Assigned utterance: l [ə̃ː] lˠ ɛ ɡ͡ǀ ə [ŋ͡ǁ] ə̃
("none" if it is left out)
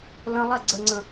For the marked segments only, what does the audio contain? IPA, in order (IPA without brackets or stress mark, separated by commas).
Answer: ə̃, ŋ͡ǀ